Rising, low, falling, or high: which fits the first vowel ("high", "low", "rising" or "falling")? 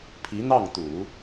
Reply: rising